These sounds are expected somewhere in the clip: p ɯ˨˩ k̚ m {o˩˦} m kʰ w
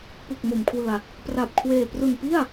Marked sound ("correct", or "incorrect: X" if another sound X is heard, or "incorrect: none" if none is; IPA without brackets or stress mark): correct